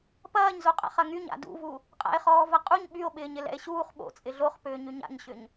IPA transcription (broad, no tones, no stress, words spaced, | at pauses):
pɐːɲzoqʼa̰χ ɐŋyɲ a̰dṵvu | qʼa̰e̯χɔːvɐqʼuɲ ɓyo̯ɓɪːɲɪ lɛ̰e̯ɕuːχ ɓo̰ t͡sʼɪɮoχpʏː ɲyɲa̰ɲɕʏɲ